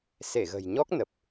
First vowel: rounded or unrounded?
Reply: unrounded